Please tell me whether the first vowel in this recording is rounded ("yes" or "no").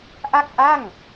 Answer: no